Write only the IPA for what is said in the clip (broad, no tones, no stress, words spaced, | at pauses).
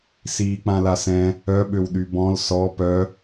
siːk͡pãlasɛ̃ | œɓøwɗy bɔ̃l sɔ pœ